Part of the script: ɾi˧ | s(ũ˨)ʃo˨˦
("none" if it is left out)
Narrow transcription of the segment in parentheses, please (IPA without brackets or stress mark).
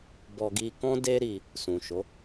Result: ũ˨